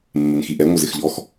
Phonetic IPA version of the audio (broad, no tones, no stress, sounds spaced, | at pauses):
mː ɪ n x i ʔ ɛ ŋʷ ə z ɪ x ʎ ɔ x